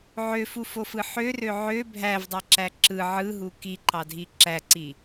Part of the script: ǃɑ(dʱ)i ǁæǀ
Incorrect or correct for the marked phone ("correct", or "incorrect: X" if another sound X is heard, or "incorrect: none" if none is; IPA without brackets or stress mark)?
correct